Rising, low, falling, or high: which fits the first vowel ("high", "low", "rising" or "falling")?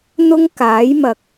high